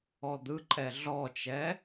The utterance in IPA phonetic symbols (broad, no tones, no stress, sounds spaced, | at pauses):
ɔ d̪ ɯ ǃʼ ɛ ɮ ɔ t͡ʃ ɛ